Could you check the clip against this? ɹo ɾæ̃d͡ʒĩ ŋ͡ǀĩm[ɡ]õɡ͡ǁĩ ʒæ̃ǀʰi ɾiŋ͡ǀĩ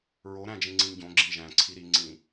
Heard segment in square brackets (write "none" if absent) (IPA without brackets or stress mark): ɟ